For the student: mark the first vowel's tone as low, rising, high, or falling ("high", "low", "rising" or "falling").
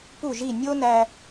falling